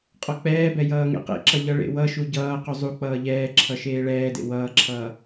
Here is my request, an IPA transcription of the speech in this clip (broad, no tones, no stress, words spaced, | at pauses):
qʼɔk͡pɛːbɛ jʌːŋḛqḛǁʌ ʎʌɭḛwʌʃu ɟʌː quzˤuk͡pʌː ʎɛːǁʰʌ ʃeːɭɛːdḛ wʌːǁʰʌː